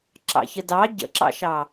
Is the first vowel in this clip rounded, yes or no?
no